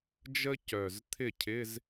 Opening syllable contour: high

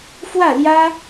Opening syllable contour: falling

